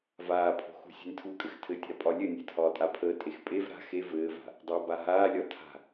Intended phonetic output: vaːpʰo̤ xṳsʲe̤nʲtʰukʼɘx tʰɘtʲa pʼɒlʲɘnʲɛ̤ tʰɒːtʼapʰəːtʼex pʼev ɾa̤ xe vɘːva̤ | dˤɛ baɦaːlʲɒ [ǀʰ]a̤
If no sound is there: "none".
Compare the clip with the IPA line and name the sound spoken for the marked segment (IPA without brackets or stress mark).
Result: tʰ